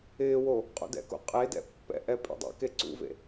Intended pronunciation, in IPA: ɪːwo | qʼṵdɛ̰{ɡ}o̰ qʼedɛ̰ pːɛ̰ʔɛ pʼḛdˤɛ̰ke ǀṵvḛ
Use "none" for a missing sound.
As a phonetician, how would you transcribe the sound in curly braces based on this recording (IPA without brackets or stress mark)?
k